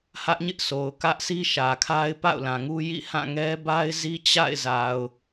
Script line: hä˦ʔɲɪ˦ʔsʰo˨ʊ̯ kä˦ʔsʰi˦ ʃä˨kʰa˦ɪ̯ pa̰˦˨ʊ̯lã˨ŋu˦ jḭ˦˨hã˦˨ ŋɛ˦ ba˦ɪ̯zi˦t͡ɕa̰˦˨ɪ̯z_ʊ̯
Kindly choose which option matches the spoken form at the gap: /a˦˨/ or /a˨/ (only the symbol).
a˨